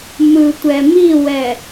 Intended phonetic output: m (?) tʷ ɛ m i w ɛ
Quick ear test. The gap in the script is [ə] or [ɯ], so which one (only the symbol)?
ɯ